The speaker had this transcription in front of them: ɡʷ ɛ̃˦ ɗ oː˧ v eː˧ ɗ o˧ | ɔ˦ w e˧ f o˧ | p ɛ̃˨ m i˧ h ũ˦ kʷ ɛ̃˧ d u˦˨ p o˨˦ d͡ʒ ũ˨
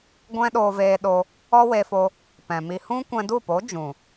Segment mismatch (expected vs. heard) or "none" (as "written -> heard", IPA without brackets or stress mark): none